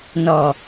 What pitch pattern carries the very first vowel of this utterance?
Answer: low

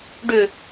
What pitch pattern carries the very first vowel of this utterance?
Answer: low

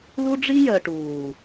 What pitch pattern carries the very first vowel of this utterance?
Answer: high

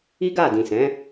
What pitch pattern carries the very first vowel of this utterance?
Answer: high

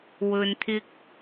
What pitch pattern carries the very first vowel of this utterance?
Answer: low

